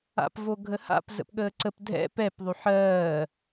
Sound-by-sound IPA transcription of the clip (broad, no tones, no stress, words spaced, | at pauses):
a̰pvoɡʱəha̰p zə̰pɠəːǀəp dʱɛ̰ pɛpðˤy ħɜː